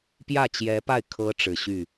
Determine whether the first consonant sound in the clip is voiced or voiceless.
voiceless